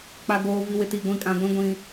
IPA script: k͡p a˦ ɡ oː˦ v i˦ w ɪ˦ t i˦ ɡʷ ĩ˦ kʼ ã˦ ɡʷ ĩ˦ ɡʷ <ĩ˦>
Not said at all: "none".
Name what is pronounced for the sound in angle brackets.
ĩ˦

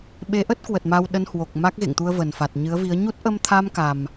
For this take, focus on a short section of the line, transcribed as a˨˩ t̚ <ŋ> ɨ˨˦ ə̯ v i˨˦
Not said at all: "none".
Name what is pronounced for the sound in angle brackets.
ɲ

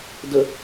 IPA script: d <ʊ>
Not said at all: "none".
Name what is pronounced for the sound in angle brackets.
ə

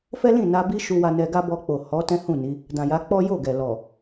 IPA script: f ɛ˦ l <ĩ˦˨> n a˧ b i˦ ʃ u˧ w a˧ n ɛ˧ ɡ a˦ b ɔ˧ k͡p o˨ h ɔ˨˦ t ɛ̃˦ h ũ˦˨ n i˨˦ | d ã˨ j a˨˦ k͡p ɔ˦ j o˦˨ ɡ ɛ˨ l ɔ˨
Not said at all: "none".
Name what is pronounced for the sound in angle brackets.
ĩ˦˨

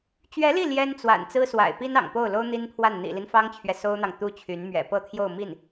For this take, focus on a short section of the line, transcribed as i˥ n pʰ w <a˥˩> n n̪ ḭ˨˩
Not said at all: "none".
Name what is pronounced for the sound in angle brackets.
a˥˩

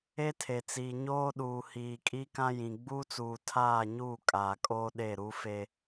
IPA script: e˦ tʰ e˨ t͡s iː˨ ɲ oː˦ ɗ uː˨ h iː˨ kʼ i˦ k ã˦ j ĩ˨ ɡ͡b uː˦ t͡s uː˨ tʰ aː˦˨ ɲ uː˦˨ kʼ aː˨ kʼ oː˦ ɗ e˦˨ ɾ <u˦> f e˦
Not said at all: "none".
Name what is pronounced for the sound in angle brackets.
u˦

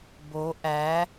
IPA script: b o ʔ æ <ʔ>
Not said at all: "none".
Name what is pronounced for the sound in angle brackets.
none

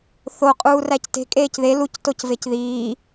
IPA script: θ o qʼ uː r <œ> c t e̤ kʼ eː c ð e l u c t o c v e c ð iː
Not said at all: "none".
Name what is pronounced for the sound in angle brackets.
æ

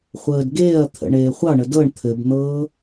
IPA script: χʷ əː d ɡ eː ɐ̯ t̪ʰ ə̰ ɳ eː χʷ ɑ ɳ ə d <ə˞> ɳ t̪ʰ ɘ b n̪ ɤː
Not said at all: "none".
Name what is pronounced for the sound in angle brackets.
ɤ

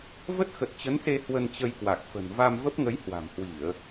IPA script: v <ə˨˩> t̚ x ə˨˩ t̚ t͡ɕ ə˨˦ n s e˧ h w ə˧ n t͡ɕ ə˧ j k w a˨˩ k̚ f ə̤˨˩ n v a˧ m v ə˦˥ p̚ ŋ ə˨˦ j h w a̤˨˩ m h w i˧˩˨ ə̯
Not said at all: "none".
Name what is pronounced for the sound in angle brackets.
ə˦˥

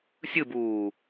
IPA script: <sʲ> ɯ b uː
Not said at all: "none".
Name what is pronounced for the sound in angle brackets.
sʲ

